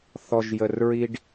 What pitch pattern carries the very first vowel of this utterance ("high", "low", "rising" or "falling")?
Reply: low